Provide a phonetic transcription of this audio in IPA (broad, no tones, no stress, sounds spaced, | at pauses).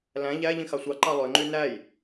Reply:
l æ̃ ʎ æ ʎ ĩ x ɑ sʷ ɑ ǃ ɑ lˠ ø ŋ͡ǃ y n æ j